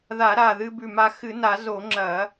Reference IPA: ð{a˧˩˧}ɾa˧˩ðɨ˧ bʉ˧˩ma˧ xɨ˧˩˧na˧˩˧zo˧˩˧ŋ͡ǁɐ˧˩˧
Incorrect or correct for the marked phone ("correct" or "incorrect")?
correct